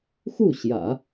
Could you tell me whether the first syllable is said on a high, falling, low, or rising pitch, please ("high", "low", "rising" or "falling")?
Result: falling